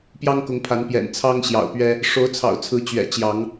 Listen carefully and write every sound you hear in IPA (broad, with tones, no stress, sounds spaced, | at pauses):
p j ɑ˦ ŋ k ʊ˨˦ ŋ pʰ a˨˦ n p j ɛ̰˨˩ n t͡sʰ ɑ˦ ŋ ɕ j ɑ̰˨˩ ʊ̯ p ɥ ɛ˦ | ʂ o˨˦ ʊ̯ t͡sʰ ɑ̰˨˩ ʊ̯ t͡sʰ ɹ̩˨˦ t͡ɕ ɥ ɛ̰˨˩ t͡ɕ j ɑ˨˦ ŋ